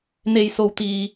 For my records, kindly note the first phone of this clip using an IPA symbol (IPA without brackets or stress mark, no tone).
n̪